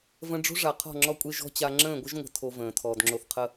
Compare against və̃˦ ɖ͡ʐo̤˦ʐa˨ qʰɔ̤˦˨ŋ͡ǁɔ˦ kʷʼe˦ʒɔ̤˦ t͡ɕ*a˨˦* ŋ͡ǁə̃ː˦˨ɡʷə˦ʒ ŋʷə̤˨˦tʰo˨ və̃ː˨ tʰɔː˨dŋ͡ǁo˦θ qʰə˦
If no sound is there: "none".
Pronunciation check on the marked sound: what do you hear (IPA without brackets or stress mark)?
a˦